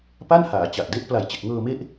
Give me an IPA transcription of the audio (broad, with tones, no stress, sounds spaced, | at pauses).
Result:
p a˥˩ n h aː˩˦ t͡ɕ a˨˩ ʔ d e˦˥ ʔ p l a˨˩ j t͡ɕ e˨˩ k̚ ŋ ɤː˧ m e˦˥ ʔ